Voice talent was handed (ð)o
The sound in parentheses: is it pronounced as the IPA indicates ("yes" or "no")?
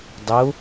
no